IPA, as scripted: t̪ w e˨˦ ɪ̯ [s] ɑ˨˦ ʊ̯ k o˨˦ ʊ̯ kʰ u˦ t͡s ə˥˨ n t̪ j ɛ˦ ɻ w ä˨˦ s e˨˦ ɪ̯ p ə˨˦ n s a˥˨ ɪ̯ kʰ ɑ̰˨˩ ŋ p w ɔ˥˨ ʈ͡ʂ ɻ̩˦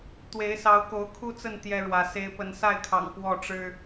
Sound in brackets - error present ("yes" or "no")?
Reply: no